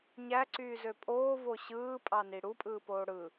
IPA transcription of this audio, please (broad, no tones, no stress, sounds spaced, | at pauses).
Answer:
ɲ æ ǀ yː z ø pʼ oː v o ɕ ɯː pʼ ɑ n i ɽ u pʼ ɯː p oː ɽ ɯ